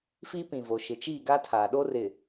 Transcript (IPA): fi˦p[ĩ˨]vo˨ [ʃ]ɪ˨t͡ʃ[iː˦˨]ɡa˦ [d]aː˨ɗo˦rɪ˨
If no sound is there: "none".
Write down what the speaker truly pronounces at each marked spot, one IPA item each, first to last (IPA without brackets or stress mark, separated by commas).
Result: ĩ˨, ʃ, iː˦˨, tʰ